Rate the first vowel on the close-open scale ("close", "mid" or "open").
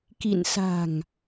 close